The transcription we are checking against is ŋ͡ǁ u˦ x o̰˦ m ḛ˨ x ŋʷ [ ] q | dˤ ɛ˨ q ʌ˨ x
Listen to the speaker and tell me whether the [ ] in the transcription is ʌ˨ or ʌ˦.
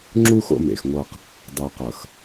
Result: ʌ˦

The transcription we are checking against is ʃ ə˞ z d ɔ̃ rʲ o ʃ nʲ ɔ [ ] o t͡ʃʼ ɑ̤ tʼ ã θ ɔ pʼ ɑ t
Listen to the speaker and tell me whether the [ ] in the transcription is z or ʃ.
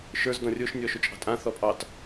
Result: ʃ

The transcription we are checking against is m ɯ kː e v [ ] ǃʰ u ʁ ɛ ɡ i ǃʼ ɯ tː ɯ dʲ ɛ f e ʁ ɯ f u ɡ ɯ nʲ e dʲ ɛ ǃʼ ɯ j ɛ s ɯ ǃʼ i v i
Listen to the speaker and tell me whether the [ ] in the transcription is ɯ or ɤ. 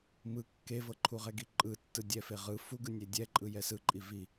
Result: ɤ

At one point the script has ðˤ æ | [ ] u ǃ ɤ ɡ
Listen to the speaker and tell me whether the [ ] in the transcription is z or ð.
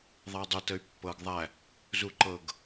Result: z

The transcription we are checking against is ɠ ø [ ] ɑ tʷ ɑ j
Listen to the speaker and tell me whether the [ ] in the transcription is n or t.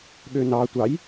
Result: n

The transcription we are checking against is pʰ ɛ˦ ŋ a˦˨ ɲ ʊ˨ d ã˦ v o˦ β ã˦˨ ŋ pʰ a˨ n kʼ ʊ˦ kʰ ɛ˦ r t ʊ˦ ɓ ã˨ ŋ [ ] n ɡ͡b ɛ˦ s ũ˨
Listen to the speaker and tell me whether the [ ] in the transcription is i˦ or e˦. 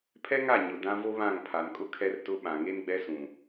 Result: e˦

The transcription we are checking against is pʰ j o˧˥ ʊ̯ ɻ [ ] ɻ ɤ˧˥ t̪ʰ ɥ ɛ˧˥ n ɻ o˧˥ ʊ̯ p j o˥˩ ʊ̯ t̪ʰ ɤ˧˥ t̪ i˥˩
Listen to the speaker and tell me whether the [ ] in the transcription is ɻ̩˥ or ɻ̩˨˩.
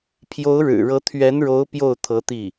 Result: ɻ̩˨˩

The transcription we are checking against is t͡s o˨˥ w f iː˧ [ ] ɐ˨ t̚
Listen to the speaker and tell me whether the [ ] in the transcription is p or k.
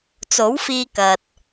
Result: k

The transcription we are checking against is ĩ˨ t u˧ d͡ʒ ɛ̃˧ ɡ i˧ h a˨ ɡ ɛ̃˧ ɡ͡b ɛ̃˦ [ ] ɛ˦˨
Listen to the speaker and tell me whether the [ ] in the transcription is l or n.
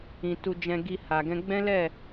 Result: l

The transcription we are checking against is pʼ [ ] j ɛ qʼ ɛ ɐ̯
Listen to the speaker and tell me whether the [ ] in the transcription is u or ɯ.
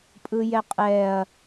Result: ɯ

